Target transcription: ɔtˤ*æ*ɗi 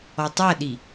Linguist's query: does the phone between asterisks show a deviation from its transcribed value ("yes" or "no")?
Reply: yes